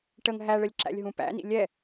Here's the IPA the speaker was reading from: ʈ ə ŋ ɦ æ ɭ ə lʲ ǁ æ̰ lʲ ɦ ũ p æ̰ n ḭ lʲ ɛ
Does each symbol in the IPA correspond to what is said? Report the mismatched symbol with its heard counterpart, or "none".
none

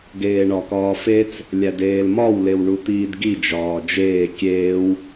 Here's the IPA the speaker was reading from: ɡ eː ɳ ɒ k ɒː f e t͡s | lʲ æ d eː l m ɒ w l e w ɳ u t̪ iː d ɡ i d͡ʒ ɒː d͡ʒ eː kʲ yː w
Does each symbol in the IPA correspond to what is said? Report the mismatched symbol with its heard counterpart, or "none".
yː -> eː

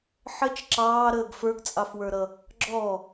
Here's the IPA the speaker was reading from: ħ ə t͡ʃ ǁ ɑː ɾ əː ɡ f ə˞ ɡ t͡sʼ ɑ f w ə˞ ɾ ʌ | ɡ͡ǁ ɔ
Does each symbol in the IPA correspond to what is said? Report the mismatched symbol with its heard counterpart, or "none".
none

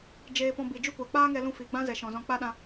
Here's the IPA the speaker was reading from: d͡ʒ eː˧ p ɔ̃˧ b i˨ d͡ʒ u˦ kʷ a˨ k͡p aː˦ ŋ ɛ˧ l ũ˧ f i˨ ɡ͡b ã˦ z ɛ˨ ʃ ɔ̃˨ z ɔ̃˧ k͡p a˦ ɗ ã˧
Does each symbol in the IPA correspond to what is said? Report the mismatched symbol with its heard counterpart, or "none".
none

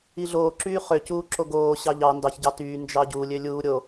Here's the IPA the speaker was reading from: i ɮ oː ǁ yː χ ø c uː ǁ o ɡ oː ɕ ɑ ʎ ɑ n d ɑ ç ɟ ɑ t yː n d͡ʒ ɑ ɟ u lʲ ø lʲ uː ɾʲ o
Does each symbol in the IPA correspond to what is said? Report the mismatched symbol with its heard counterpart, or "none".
none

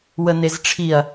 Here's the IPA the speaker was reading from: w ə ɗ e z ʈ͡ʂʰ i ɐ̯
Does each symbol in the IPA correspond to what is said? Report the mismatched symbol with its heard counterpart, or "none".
ɗ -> n̪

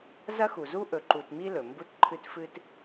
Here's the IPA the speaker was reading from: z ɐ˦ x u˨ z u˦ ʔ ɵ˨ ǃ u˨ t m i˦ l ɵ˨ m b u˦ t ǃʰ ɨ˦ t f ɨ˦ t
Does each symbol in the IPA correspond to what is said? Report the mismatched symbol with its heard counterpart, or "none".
none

